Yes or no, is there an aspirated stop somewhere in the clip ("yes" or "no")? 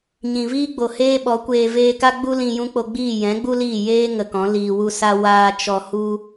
no